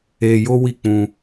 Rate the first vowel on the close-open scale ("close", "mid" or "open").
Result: mid